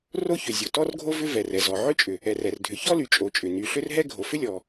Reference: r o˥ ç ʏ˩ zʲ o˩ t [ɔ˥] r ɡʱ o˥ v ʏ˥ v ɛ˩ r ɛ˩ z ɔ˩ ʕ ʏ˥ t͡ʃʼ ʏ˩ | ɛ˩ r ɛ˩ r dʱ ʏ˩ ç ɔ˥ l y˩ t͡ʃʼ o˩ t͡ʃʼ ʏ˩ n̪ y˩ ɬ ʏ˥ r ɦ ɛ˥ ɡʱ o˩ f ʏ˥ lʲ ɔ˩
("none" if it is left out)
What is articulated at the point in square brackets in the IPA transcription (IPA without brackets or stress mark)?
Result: ɔ˥